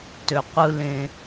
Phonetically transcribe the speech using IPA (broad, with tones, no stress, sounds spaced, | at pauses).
t ø˨ qʷ ɯ˧ l ẽ˧